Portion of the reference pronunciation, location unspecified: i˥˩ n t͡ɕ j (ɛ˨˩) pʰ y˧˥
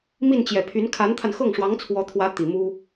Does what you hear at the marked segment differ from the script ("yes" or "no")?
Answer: no